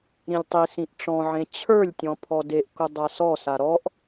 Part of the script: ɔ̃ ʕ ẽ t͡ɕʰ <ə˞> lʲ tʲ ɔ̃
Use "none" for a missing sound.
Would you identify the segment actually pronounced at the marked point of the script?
ə˞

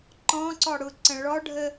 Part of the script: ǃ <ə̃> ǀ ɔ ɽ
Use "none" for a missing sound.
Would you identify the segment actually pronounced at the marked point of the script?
ɔ̃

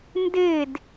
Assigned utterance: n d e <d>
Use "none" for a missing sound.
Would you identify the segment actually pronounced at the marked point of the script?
d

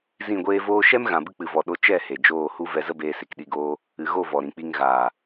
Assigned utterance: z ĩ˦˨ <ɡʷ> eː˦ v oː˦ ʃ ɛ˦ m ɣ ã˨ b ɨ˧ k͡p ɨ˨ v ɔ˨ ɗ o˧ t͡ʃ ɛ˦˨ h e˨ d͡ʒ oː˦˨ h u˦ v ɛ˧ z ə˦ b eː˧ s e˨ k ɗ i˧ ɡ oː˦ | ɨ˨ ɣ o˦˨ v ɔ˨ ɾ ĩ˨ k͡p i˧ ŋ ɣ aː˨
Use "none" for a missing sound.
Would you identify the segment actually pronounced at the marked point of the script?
ɡʷ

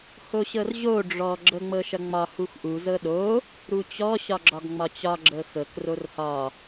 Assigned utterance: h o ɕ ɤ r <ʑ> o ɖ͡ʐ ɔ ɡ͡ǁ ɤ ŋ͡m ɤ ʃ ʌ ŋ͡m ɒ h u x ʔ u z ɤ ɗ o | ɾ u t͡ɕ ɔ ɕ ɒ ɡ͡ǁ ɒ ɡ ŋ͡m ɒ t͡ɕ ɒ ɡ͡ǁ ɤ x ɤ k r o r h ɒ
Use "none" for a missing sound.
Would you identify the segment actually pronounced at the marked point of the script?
ʑ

